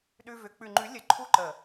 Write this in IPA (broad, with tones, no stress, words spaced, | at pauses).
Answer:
ɗʉ˧vʏ˨˦ k͡pʉ˨ŋ͡ǃʉ˨˦lʲə˨ ǃʰu˦ǃə˨